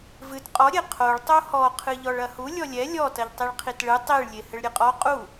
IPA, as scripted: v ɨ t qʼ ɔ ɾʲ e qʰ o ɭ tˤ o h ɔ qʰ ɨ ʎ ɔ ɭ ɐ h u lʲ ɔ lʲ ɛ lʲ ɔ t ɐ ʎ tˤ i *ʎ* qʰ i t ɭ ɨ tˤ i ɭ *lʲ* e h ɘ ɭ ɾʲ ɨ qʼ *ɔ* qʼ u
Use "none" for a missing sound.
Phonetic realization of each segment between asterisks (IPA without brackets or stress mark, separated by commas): ɭ, lʲ, ɔ